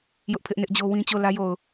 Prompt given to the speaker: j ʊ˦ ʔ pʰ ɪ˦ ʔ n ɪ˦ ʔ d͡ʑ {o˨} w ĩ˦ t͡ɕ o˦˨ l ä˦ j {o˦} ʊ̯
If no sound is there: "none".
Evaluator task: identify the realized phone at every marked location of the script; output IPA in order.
o˦, o˨

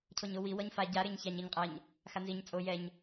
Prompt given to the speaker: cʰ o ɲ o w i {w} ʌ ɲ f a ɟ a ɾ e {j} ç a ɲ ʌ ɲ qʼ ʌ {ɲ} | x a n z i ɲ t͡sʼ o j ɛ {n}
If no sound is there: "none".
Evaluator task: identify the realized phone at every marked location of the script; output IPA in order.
w, ɲ, ɲ, ɲ

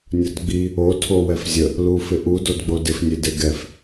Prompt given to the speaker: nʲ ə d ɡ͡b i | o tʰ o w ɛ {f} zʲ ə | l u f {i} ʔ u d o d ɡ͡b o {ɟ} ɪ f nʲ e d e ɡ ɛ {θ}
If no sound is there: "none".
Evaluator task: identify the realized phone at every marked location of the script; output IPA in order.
f, ɪ, d, f

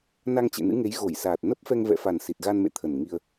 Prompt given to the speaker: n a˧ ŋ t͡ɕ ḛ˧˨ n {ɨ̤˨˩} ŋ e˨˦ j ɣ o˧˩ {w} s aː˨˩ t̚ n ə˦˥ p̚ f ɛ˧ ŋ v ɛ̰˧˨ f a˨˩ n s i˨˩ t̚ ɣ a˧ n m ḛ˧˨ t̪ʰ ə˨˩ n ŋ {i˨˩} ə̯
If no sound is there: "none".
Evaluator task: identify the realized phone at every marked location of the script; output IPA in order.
ɨ̰˧˥, j, i˧

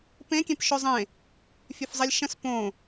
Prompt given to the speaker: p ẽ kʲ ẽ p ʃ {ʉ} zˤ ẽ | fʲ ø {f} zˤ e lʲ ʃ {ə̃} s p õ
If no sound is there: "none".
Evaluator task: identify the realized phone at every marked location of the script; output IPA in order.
ø, f, ə̃

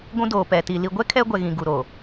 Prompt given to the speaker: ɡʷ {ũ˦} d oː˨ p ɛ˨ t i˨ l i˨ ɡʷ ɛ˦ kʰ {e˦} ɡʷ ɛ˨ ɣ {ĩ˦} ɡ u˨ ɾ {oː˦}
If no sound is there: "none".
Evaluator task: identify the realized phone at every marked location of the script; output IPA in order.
ũ˦, ɛ˦, ĩ˨, oː˨

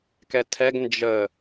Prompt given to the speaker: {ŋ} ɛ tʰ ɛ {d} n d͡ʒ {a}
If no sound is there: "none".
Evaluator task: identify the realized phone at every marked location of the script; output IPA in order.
k, ɡ, ə

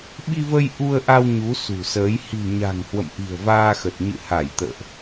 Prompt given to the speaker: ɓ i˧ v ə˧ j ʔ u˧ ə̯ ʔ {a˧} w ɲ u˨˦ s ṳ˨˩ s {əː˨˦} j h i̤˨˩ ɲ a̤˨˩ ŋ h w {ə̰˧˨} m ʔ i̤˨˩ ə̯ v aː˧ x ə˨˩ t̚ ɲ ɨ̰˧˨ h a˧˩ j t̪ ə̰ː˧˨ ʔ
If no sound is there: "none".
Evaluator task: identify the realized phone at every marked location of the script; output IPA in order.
a˧, əː˨˦, ə̰˧˨

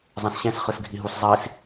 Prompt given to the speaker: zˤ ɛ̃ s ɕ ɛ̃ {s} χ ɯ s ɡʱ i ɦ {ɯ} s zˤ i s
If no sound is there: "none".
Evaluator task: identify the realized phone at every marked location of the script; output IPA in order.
s, u

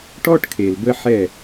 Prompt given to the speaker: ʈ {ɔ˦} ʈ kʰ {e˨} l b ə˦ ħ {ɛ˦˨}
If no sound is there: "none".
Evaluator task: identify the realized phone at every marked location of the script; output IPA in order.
ɔ˦, e˨, ɛ˦˨

